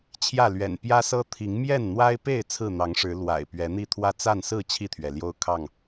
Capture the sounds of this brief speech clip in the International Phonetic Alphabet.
t͡ɕʰ j ä˥˨ l ɥ ɛ̰˨˩ n p j ä˦ s ɤ˦ t̪ʰ i˨˦ ŋ m j ɛ˥˨ n n̪ w a˦ ɪ̯ p e˥˨ ɪ̯ t͡sʰ ɹ̩˥˨ n̪ ɑ˨˦ ŋ ʂ ɻ̩˨˦ l w a̰˨˩ ɪ̯ p ɥ ɛ˨˦ n̪ i˥˨ t̪ʰ w ä˥˨ t͡s a˥˨ n s ɹ̩˥˨ t͡ɕʰ i˥˨ t̪ʰ ɥ ɛ˩ l j o˦ ʊ̯ kʰ ɑ˥˨ ŋ

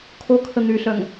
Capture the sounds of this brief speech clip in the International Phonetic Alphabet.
kʰ o kʰ ə n̪ y ɬ œ ŋ

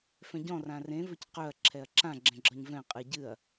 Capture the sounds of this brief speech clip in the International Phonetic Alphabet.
f ɛ̃ ɟ ɔ̃ r ã r ẽ v ɵ c q ɵ ɐ̯ ǁʰ ɛ ɐ̯ ǁ ã ɡ͡ǁ ɛ̃ ɡ͡ǁ ɒ ɲ v ɛ̃ qʼ ɨ ɟ ɨ ɐ̯

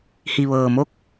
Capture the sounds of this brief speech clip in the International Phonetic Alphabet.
h i˩ ʋ ɤː˩ m o˥˨ k̚

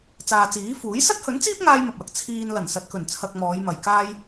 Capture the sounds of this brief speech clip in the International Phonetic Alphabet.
t͡s aː˨ t͡s iː˨˥ f uː˨˥ j s ɐ˥ t̚ h ɵ˨˥ n t͡s iː˥ p̚ ŋ aː˥ j m ɐ˨ p̚ w ɐ˨ k̚ t͡sʰ iː˧ n l ɐ˨˩ n s ɐ˨ t̚ k ɵ˨˩ n t͡sʰ ɐ˨ k̚ m ɔː˨˧ j m ɐ˨ j k aː˥ j

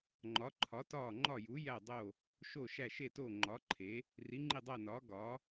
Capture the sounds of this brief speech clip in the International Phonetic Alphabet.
ŋ͡ǃ ɒ˨˥ ǃʰ ɒ˨˥ t ɒː˦˨ ŋ͡ǃ ɒ˦˨ j u˨˥ j æ˦˨ dˤ o˦˨ | ʃ oː˦˨ ʃ æ˦˨ ʃ e˦˨ t oː˦˨ ŋ͡ǃ ɒː˨˥ ǃʰ e˨˥ | r i˨˥ ŋ͡ǃ i˦˨ dˤ æ˦˨ n ɒː˨˥ ɡ ɒ˨˥

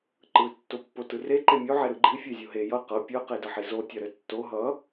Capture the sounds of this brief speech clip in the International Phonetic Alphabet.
ǃ ɯ tː o pː o t ɯ r e ǃ e mʲ o ʕ e ɾ ɯ ɡ͡ǃ i fʲ e zʲ o ɦ e j ʌ q ɤ pʲ ɤ q e d ʌ ħ i z o tʲ ʌ ɾ ɘ tː o ɦ ʌ

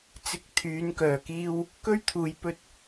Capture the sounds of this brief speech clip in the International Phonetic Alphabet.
t͡s ɪ˧ k̚ t̪ʰ yː˨˧ n k œː˨˩ k iː˧ w | k ɵ˥ ɥ t̪ʰ uː˨ j p ɵ˧ t̚

